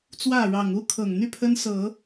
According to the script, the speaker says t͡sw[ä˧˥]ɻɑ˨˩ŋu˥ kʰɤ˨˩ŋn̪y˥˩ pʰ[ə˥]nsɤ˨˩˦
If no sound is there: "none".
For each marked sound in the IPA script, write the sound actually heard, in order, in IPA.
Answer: ä˥˩, ə˥

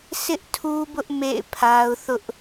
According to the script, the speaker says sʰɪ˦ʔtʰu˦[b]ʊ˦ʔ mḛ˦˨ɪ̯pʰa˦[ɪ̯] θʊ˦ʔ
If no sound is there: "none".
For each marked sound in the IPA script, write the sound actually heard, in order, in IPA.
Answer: b, ʊ̯

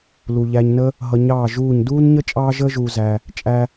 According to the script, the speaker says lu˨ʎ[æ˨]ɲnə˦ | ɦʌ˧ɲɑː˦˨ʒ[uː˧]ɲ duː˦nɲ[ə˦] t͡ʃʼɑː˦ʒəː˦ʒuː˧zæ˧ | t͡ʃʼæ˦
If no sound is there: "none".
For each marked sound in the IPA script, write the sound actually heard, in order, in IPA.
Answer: æ˧, uː˦˨, ə˦

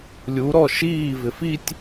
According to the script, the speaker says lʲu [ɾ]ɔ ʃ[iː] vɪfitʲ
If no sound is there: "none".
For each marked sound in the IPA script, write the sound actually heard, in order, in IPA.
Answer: ɾ, iː

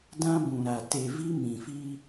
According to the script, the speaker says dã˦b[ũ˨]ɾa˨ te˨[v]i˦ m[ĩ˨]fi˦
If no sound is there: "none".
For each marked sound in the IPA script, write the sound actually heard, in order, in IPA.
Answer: ũ˨, v, ĩ˨

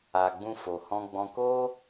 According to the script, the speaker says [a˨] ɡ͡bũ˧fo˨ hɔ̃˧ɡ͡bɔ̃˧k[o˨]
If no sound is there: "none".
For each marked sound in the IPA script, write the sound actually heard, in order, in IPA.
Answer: a˨, o˦

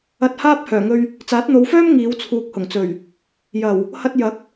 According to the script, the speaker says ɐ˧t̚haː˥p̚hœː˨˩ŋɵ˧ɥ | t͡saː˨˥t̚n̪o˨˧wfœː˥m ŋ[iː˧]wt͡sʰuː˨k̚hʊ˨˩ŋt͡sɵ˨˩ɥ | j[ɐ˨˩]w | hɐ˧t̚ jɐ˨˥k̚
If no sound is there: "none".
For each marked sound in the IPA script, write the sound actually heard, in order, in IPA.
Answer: iː˨˧, ɐ˨˩

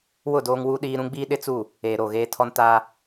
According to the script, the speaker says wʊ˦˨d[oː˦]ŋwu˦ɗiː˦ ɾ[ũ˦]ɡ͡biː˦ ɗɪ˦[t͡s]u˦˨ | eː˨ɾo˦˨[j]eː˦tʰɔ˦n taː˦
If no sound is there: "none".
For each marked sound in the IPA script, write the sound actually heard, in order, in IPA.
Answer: oː˦, ũ˦, t͡s, ɣ

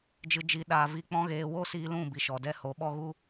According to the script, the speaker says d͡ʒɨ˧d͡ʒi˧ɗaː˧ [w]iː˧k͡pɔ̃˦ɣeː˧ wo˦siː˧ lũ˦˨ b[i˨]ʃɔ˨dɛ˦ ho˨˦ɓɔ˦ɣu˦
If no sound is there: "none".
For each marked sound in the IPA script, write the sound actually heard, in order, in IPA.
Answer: v, i˨

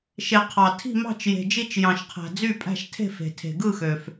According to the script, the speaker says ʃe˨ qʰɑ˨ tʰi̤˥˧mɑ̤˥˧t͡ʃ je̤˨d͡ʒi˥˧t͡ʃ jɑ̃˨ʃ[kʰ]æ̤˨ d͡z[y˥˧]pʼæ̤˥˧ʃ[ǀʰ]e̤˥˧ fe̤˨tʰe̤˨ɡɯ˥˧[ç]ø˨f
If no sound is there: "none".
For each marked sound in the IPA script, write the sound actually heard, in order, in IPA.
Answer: qʰ, y˥˧, tʰ, x

